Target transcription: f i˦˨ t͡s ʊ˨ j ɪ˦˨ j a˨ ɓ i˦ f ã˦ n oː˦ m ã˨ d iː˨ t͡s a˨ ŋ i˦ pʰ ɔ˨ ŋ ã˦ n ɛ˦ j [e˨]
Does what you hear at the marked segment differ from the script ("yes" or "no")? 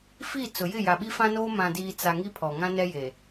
no